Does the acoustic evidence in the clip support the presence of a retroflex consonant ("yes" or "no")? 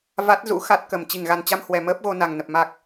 no